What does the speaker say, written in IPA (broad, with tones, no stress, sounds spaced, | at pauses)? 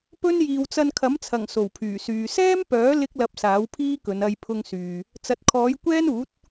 p ɵ˥ n j iː˨ w t͡s ɐ˧ n kʰ ɐ˨˥ m t͡sʰ ɐ˨˩ ŋ s o˨˩ w pʰ yː˨˩ s yː˨ s ɛː˥ m p œː˨˥ l ɪ˥ k̚ l ɐ˧ p̚ s aː˨˥ w pʰ iː˥ k ɵ˨˧ n ɐ˧ j pʰ ʊ˧ ŋ s yː˨ | t͡s ɐ˨ t̚ kʰ ɔː˨˥ j kʷ ɛː˥ n uː˨˥ t̚